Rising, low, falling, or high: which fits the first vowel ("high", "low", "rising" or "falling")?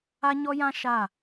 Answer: high